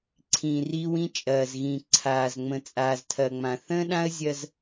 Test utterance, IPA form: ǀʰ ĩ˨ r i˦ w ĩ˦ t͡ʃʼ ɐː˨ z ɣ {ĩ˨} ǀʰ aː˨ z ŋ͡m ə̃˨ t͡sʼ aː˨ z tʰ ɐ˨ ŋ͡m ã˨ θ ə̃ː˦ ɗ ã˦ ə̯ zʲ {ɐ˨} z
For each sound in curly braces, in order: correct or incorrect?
correct, incorrect: ɐ˦

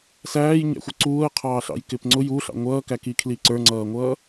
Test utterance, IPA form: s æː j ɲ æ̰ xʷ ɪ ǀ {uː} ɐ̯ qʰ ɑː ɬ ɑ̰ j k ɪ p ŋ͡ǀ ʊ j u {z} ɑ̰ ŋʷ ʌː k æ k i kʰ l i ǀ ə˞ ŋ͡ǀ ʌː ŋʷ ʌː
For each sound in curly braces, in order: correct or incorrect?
correct, incorrect: ɬ

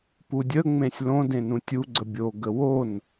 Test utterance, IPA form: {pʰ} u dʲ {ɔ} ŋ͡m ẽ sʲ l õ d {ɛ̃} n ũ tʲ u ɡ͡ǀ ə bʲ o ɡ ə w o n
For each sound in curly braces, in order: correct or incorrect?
incorrect: p, incorrect: ə, incorrect: ẽ

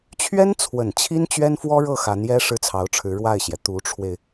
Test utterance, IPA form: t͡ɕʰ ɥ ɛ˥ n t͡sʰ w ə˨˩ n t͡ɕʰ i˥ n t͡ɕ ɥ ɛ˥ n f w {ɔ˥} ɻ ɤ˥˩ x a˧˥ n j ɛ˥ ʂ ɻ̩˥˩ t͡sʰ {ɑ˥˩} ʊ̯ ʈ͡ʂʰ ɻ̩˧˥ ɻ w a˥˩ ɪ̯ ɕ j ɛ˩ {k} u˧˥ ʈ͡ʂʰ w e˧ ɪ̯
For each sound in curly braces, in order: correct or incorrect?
correct, incorrect: ɑ˧˥, incorrect: t̪

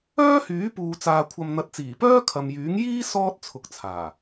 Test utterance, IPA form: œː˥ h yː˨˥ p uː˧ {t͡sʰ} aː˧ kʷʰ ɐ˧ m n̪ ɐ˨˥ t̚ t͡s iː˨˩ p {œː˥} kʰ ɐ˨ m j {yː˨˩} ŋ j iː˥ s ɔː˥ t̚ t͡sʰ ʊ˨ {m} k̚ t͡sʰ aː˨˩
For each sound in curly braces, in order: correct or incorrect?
incorrect: t͡s, correct, incorrect: yː˨˥, incorrect: none

